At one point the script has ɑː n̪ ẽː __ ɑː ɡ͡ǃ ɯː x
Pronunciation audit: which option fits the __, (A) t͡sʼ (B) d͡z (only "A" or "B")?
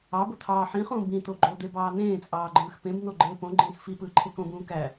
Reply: A